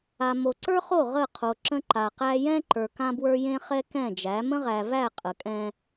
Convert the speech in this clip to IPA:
a˨ m o˨ ǀ ə˞˦ χ o˦˨ ʁ ə˦˨ qʰ o˨ ǁ ə̃˦ ǃ a˨ q æ˦ j ɛ̃˦ ǃ ə˞˨ k ã˦ b w ə˞˦ j ẽ˦ χ ɛ˦ k ɛ̃˦˨ d͡ʒ æ˨˦ m ə̃˦ ʁ æ˨ v æ˦˨ qʼ ə˨ kʼ ɛ̃˦

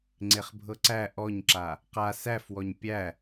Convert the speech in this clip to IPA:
ŋ͡ǀ e χ bʱ ɤ ǀ æ ʔ ɔ ɲ ǁ a | q a s æ f w ɔ ɲ pʲ æ

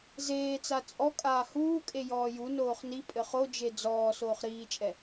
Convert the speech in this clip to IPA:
z eː t͡s a t͡sʼ ɔ kʼ aː h uː kʼ e j ɔː j u n oː χ n i pʼ ɘ χ o d͡ʒ e d͡z ɔː s oː χ ɾ iː t͡ʃʼ ɛ

